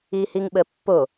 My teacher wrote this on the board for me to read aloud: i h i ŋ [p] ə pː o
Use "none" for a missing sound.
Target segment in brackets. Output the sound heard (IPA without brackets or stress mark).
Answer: ɓ